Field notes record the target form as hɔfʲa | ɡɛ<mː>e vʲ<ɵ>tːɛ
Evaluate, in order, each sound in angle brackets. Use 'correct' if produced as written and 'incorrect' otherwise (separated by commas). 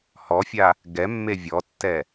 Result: correct, incorrect